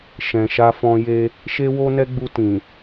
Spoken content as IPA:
ʃɛ̃˨ʃa˧fɔ̃˧je˧ | ʃe˦wo˦nɛ˦ɡ͡bu˧ tĩ˨

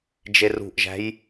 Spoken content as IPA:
d͡ʒerṳʔʒæ̤j

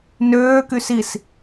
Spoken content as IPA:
nøː kysis

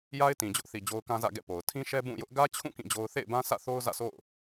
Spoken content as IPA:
ja˦ɪ̯tĩ˨d͡ʑʊ˦ʔθi˨ d͡ʑo˦ʊ̯kã˦zä̰˦˨ ɡɛ̰˦˨po˨ʊ̯ tʰĩ˦ʃɛ˦ bũ˦˨jʊ˦ʔ ɡä˦t͡ɕʰũ˦˨ kĩ˦˨d͡ʑo˦ʊ̯ θḛ˦˨ɪ̯bã˦sä̰˦˨θo˦ʊ̯ zä̰˦˨so̰˦˨ʊ̯

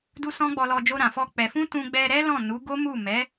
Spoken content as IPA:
du˦sɔ̃˦ɡ͡bɔ˧lɔ˧ d͡ʒo˧ɾã˨fɔ˧ k͡pɛ˨fũ˧ tũ˧ɡ͡bɛ˧ɾɛ˦lɔ̃˦˨ nu˨˦ɡo˦ mu˦˨mɛ˨˦

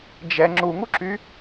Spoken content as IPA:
d͡ʒɛ ŋ͡ǁuŋuǁy

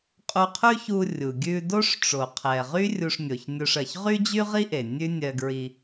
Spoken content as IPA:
qʼu˧qʰʉ˥çu˧ rʲu˩ɡʲʉ˧do˥ʂ ʈ͡ʂo˩qʰɛ˩ʁy˥ rʲu˧ʂnʲo˩çnʲo˧ʂɜ˩ç ʁy˥d͡ʑy˥ʁi˥ʔe˩ nʲʉ˥nʲɜ˧ɡɹi˧

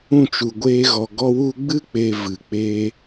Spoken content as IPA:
ũ˦˨t͡ʃu˨ɡʷeː˧ɣɔ˨ ɡɔ˧wu˧ ɡ͡bɨ˦k͡pe˨ vɨ˨k͡peː˦

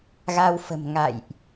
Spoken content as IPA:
ɣa˧wfə̤˨˩mŋa̰˧˨jʔ

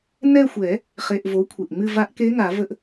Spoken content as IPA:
nɛ˦˨xʷɛ˨˩˦ | χe˩˧˩ʔvo˩˥ kʷʰe˩ʔŋ͡mɨ˦˨va˧˥ʔ ke˧˥ŋa˨˩˦və˧˥ʔ

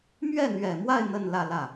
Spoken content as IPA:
mɥɛ˥˩n̪ɥɛ˨˩mwa˥˧ɪ̯ n̪ə˥˧nlä˥˧lä˥˩

